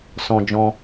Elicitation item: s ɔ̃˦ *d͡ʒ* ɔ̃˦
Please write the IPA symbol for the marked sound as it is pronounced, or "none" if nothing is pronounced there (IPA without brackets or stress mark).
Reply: d͡ʒ